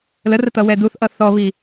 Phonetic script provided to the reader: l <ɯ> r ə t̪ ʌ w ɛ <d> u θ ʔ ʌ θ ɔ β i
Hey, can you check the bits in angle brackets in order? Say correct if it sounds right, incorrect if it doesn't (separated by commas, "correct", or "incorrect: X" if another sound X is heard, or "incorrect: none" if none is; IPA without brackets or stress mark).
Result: incorrect: ə, correct